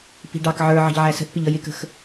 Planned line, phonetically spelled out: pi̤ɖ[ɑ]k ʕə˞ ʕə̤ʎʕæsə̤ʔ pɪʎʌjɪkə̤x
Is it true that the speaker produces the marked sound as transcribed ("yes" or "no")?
yes